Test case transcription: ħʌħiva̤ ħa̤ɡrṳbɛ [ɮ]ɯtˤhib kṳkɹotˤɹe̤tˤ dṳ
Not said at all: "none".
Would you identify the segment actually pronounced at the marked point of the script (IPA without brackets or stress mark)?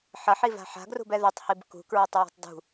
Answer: ð